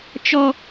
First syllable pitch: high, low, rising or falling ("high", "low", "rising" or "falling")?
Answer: high